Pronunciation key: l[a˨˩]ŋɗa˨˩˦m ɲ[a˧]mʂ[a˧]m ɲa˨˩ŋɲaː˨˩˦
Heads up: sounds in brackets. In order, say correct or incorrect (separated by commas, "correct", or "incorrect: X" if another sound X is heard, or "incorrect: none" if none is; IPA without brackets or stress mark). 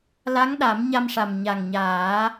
incorrect: a˧˥, correct, incorrect: a˨˩